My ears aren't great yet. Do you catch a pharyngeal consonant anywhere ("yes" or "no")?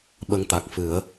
no